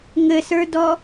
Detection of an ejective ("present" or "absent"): absent